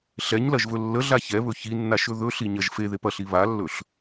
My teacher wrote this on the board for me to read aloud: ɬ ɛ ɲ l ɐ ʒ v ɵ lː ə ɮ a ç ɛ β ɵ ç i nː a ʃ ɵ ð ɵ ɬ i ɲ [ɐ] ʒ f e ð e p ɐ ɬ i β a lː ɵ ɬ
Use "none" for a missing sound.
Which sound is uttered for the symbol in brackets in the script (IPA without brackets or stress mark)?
ɐ